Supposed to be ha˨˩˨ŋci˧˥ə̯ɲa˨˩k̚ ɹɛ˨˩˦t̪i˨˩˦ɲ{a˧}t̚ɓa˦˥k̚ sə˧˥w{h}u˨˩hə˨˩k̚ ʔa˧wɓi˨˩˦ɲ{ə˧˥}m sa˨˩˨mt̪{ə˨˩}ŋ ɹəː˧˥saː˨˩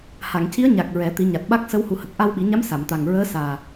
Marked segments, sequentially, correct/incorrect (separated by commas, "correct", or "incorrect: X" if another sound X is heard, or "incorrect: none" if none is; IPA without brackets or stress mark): incorrect: a˨˩, correct, incorrect: a˧˥, incorrect: a˨˩